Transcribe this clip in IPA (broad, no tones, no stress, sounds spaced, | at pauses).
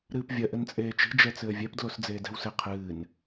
ɾ ɨː p vʲ ɐ ʔ ɘ n t͡sʼ eː t͡ʃ i̤ d͡ʒ ɛ t͡s ɘː vʲ ɛ p d l o s d͡z eː d ɛ̤ w s ɘ qʰ ɨː n